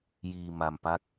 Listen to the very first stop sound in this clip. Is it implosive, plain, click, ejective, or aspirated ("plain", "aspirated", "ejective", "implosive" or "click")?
plain